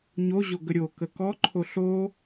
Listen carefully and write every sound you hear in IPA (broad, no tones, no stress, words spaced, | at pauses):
ɲoʑo ɡəɾʲokə kɔǃʰo ɬo